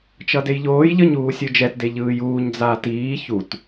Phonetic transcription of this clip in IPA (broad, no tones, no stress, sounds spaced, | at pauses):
t͡ʃ ʌ d e j ʎ oː j ʎ ʌ ɲ uː sʲ ɯ d͡ʒ ɛ t d e ʎ ɯː j uː ɲ d͡z aː t iː ç u t